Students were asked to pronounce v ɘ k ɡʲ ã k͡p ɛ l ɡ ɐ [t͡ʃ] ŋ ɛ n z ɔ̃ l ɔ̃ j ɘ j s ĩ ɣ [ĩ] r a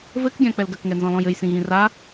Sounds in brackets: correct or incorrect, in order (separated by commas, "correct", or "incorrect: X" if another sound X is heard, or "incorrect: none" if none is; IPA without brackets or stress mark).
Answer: incorrect: k, correct